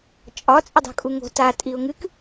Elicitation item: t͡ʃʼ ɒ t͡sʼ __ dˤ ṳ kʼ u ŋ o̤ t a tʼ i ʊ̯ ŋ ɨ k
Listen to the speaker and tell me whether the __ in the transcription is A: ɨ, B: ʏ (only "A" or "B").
B